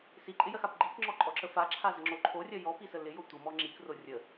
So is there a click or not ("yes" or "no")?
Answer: yes